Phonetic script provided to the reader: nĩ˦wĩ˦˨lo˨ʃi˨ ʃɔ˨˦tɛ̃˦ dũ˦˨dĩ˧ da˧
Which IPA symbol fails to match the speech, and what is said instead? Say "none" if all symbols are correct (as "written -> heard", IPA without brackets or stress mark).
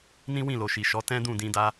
none